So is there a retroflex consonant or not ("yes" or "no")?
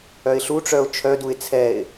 yes